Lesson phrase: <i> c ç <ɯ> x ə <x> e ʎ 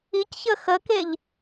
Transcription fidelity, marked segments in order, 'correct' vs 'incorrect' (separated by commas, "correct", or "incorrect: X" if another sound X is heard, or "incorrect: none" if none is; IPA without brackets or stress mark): correct, incorrect: ə, incorrect: k